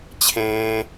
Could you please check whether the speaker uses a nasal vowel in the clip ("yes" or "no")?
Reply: yes